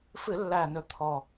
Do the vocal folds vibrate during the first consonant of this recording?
no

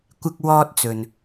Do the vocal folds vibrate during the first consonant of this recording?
no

